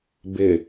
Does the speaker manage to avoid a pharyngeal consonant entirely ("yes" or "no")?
yes